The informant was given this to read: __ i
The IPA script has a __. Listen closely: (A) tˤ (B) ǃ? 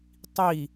A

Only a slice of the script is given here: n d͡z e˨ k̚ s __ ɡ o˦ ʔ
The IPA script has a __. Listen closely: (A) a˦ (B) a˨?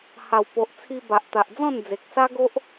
A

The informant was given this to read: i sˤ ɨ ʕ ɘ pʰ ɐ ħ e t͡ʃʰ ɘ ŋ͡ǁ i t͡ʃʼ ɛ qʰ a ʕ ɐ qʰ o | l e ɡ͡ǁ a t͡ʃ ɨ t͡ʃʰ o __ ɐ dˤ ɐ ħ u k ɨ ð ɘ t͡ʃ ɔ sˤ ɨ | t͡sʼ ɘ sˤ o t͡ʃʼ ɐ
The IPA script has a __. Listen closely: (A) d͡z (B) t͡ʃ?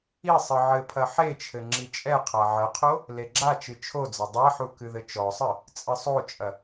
A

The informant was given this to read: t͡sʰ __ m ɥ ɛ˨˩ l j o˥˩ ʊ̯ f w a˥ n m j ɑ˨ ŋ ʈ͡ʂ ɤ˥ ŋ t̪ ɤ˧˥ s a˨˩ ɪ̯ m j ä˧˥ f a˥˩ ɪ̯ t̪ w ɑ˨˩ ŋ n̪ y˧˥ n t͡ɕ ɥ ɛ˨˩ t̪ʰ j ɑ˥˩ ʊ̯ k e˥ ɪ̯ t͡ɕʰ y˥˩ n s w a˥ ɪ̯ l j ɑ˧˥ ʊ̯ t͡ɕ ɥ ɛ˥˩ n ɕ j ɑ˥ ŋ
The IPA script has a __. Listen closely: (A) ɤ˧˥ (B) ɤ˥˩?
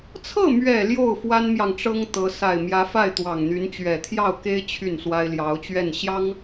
B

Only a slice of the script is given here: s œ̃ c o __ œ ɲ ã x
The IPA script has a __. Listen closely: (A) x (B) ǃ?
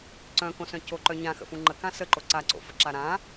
B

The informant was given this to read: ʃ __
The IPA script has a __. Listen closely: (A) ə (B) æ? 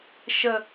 A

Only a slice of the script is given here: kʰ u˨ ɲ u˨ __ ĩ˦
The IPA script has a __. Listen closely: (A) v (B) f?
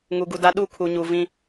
A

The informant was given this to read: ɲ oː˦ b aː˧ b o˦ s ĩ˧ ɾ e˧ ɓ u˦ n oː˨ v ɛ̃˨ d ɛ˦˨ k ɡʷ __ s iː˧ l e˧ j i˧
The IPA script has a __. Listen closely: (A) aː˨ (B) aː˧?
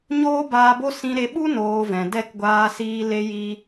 B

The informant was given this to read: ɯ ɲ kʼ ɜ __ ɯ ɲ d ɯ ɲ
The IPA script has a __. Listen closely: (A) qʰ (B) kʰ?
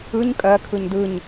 B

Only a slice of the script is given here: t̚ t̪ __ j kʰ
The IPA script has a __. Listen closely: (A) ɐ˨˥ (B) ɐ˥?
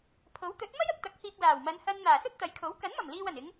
A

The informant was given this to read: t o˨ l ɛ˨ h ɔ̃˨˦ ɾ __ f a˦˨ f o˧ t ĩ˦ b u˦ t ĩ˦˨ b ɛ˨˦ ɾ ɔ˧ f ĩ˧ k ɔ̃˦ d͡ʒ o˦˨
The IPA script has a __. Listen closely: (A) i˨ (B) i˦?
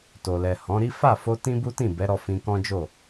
B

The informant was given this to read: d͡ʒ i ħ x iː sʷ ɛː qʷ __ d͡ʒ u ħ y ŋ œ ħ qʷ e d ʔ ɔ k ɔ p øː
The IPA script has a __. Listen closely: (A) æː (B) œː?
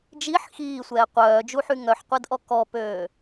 B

